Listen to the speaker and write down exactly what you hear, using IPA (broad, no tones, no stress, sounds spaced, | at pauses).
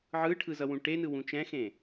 ʕ ɯ ʈʰ ɯ z ʌ w ũ ʈ e n ɯ w ũ t͡ʃ ɛ̃ x ẽ